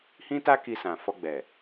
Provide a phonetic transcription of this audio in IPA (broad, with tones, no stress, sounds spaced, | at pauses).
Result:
h ĩ˦ t a˦ k i˧ s ã˨ f ɔ˧ ɡ͡b ɛ˨